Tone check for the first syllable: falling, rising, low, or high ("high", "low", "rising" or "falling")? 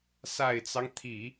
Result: low